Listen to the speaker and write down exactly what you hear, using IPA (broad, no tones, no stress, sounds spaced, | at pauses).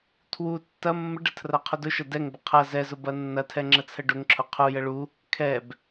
tʰ w u tː ɐ mː ə ɖ ə tʰ r ɐ qʰ ʊ d ʊ ʃ ɐ d ɛ ŋ b ə qʰ ɐ z ɛ z ʊ b ɐ nː ɐ tʰ ɛ ŋ͡ǁ ə t͡sʰ ə ɖ ʊ ŋ ǁʰ ʊ qʰ u j ə ɭ u | kʰ ɛ b